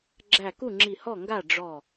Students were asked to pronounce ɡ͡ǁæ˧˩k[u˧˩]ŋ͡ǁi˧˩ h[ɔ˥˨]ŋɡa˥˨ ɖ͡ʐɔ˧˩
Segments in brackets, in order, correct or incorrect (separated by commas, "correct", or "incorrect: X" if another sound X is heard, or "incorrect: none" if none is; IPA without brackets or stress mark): incorrect: u˥˨, correct